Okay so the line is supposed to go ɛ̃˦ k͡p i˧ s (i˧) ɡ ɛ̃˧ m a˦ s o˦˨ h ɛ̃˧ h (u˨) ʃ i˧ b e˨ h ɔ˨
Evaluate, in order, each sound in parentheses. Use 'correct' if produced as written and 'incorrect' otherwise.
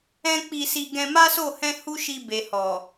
correct, incorrect: u˦

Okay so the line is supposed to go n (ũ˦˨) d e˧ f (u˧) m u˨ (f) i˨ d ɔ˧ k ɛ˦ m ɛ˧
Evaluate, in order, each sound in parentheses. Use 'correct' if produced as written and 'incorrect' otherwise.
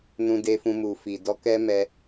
incorrect: ũ˧, incorrect: ũ˧, correct

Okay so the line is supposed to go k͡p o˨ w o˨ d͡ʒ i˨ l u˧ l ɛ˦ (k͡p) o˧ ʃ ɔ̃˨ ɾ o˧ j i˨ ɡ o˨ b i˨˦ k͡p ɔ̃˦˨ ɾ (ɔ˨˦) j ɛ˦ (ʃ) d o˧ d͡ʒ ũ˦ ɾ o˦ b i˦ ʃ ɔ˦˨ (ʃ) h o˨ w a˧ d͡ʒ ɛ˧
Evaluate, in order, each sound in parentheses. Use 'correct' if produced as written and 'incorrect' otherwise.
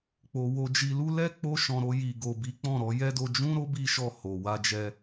correct, correct, incorrect: none, incorrect: none

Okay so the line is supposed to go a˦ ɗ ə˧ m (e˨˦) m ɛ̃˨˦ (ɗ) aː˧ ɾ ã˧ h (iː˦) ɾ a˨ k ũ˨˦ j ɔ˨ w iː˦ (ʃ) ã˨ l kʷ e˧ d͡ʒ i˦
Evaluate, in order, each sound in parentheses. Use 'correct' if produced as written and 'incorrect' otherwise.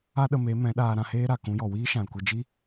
correct, correct, incorrect: eː˦, correct

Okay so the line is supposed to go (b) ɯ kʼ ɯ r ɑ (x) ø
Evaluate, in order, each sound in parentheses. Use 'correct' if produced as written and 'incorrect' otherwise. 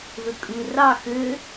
incorrect: ð, correct

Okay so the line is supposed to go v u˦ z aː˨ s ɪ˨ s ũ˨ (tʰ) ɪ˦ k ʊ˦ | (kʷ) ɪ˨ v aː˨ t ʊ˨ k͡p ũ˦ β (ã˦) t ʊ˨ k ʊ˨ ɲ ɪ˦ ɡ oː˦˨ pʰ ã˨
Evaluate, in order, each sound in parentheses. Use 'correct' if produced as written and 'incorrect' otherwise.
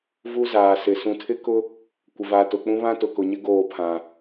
correct, correct, correct

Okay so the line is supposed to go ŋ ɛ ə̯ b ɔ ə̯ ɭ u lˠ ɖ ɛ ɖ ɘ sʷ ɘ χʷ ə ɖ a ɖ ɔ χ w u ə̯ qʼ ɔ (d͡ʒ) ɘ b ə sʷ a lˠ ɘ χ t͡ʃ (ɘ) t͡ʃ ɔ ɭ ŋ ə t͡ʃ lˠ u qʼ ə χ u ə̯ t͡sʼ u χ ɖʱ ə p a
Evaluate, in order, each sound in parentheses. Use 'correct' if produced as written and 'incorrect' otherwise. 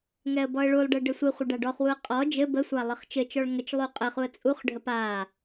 correct, correct

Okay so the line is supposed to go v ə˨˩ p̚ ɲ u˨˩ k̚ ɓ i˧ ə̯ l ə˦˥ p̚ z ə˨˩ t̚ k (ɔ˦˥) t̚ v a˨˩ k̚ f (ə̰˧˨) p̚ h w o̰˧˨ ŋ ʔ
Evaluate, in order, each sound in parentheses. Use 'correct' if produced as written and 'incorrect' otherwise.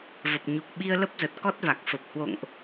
correct, incorrect: ə˨˩

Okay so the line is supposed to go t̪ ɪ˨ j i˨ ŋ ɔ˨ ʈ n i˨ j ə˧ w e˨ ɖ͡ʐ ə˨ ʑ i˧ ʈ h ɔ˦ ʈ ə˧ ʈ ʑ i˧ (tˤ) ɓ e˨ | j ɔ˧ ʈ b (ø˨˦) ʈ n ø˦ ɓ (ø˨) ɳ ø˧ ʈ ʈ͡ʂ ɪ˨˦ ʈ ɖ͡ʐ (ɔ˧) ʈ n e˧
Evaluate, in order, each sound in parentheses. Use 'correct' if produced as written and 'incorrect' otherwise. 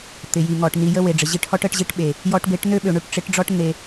incorrect: ʈ, incorrect: e˨˦, correct, incorrect: ɔ˦

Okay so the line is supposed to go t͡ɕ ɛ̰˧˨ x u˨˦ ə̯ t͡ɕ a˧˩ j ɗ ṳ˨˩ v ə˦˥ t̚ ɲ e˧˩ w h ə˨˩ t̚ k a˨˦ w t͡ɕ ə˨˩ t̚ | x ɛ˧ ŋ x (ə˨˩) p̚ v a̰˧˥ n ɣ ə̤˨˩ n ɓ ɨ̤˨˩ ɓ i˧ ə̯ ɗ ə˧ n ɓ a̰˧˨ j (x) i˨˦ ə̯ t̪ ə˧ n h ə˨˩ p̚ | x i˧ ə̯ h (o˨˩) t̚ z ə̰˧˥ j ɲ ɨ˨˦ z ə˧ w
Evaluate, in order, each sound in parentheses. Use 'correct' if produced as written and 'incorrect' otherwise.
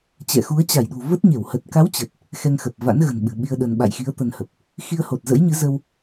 correct, correct, correct

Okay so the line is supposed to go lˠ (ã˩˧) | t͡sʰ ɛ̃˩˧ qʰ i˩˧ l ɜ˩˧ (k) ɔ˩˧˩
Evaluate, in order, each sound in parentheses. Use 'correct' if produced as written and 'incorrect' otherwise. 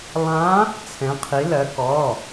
incorrect: ã˧˥, correct

